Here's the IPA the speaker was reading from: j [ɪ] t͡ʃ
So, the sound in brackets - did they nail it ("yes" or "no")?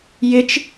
yes